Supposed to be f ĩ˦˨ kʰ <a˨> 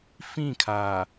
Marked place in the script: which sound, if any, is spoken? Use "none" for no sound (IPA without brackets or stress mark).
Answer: a˨